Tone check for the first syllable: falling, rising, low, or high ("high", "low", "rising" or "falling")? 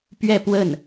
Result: falling